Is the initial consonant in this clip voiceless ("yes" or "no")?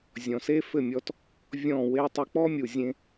no